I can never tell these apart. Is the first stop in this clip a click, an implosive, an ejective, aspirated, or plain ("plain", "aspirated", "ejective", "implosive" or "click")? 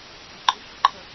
plain